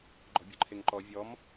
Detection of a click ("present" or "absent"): present